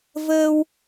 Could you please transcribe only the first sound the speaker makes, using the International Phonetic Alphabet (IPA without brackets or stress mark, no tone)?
v